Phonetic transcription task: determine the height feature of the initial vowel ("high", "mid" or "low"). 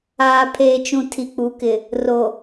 low